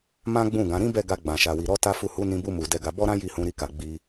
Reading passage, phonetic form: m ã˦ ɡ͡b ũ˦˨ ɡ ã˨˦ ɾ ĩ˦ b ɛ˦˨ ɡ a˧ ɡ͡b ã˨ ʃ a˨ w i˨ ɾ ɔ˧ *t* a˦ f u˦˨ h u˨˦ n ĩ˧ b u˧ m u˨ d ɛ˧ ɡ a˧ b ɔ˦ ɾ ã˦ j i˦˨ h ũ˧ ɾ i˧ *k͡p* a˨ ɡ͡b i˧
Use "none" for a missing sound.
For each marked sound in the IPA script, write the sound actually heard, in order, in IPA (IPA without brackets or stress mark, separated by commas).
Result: t, k